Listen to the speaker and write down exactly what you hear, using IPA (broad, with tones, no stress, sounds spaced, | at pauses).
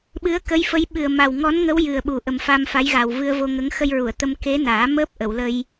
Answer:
ɓ ɨ˧˥ ə̯ k ə˧˥ j f ə˧˥ j ɓ ɨ˨˩ ə̯ m a˨˩ w ŋ ɔ˧˥ n ŋ ə˧˥ w j ɨ˨˩ ə̯ ɓ u˨˩ ʔ ə˨˩ m f a˧ m f a˧˥ j ɣ a˨˩ w v ɨ˧ ə̯ v o˧ ŋ ə˧˥ ŋ x ə˧ j ɹ u˨˩˨ ə̯ t̪ ə˧ m k e˧˥ n aː˨˩˦ m əː˦˥ p̚ ʔ ə˨˩˨ w l ə˧ j